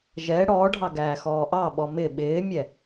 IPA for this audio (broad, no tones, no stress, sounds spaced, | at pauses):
ʒ ɛ ɽ ɔː ɖʱ ɑ ɡ æː x ɔː ʔ ɑ ɓ ɔ m ɪ ɓ ɪː mʲ ɛ